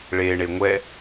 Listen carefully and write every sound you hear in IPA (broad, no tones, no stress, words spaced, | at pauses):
ɭeɳe ŋʷɛ